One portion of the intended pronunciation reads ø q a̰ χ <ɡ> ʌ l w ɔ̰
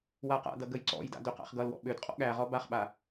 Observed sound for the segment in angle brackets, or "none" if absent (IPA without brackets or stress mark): ɡ